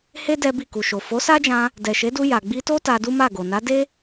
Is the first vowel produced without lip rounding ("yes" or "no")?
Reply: yes